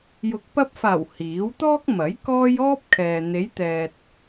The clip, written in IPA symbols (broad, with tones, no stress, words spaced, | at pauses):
jʊ˨˥k̚pɐ˧p̚faː˨˩w hiː˨˥w t̪ɔː˥k̚mɐ˨˥j kɔː˥j ɔː˥p̚kʰɛː˨ n̪e˨˧jt̪ɛː˨t̚